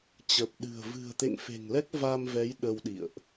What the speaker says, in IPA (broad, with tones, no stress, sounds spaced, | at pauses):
t͡ɕ ə˨˩ p̚ ɗ ɨ̤˨˩ ə̯ v ɨ̤˨˩ ə̯ t̪ ḛ˧˨ ŋ f e̤˨˩ ŋ l ɛ˦˥ k̚ v a˧ m v ɛ˨˦ j ɗ ə˧ w ɗ ḭ˧˨ ə̯ ʔ